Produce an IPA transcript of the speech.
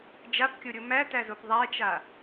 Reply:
d͡ʒ a p kʲ o ɾʲ o m æ t æ z o p ðˤ æ t͡ʃ a

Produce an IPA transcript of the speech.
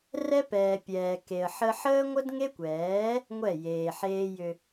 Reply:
r ɛ˦ p ɛː˨ pʲ ɛː˨ k e˨ ə̯ ħ ə˦ ħ əː˦ ŋʷ ə˦ d ŋ e˦ kʷ ɛː˨˦ | ŋʷ ɛ˦˨ j eː˨ ħ eː˦ j ʏ˦

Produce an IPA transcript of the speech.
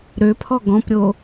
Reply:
ɾ ø pʰ ɔ ɡ ɔ̃ p ɾʲ o

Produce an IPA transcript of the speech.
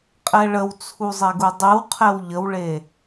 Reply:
qʼ ɛ ɭ ə w t͡sʰ u zˤ ɛ ɡ u dˤ ɨ w qʰ ɛ w ʎ ə w ɭ e

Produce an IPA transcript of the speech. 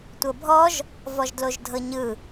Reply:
tʷ ɤ bʱ ɔ ʒ | v ɔ ʒ d l o ʒ dʱ ɤ ɲ ɯ

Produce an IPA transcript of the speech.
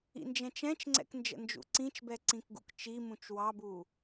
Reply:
ḭ n d͡ʒ ɛ̃ t͡ʃ ɛ̃ t͡ʃ ŋ͡ǀ ɛ̰ k n d͡ʒ ə̰ n d͡ʒ ṵ ǀ ĩ t͡ʃ b ɛ ǀ ĩ k ɡ ṵ k t͡ʃ i m ũ t͡ʃ w ɑ b u

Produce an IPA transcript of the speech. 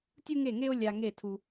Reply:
tʲ u˥ ŋ e˥˩ ŋ e˥ o̯ lʲ a˧ ŋ e˥˩ tʰ u˧

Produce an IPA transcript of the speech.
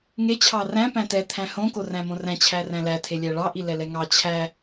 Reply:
ŋ e t͡ɕʰ ɑ r æ̃ p æ̃ t ɛ t̪ʰ æ̃ h õ k o r æ̃ m õ r æ̃ t͡ɕʰ æ r æ̃ l æ tʰ e lʲ æ ɭ ɑ ʔ i l ɛ l ɛ ŋ ɑ t͡ɕʰ æ

